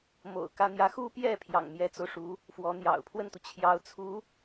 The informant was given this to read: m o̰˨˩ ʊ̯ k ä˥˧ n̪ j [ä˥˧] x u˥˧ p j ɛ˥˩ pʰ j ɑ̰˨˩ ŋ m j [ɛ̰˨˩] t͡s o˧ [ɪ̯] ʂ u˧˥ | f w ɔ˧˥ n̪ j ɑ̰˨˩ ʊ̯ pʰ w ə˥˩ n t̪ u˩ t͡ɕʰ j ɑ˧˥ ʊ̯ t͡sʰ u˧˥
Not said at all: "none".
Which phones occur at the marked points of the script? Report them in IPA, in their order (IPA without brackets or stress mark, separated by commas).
ä˥˧, ɛ˧˥, ʊ̯